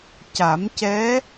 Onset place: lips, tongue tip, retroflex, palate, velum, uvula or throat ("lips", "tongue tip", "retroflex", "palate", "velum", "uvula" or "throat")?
palate